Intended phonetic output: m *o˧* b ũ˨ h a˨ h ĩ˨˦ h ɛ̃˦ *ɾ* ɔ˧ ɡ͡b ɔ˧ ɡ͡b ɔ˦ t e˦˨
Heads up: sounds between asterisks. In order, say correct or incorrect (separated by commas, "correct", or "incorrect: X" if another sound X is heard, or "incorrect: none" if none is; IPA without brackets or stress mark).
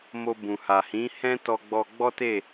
correct, incorrect: t